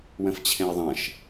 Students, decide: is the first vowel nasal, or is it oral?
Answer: nasal